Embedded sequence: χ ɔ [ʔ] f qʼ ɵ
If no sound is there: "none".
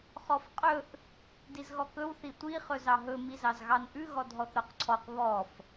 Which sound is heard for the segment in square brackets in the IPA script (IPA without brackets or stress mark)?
none